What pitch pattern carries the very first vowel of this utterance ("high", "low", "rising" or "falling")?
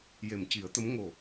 low